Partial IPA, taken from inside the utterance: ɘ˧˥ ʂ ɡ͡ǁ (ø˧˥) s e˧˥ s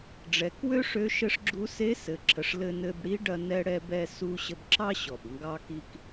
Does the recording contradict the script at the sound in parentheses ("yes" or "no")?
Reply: yes